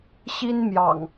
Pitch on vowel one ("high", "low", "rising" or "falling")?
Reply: high